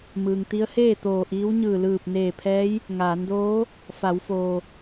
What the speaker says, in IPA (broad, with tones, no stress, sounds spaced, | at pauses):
m ɯː˩ ŋ t̪ i˧˥ ə̯ h eː˥˨ t̪ oː˧˩ ʔ iː˧˥ w ɲ ɯː˧˩ l ɯː˧˩ p̚ n eː˧˩ pʰ ɛː˧˥ j | ŋ aː˩˧ n d oː˧˥ | f a˩˧ w f oː˩